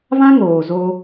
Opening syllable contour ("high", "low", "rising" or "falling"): high